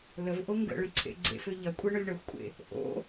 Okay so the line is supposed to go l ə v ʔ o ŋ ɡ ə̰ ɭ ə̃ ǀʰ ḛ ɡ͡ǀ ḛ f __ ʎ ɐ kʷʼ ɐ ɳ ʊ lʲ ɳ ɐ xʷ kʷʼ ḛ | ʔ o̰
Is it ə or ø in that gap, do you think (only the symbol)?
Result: ø